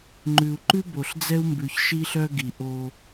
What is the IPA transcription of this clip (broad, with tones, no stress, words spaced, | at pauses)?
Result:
ŋ͡ǃʉ˨u̯ ǃʉ˦ bo˨ɬd͡zɛ˦u̯mbʉ˨ç ʃi˦ɬœ˦ɡi˨ ʔo˦